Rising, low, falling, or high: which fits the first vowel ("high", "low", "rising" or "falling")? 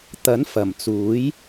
rising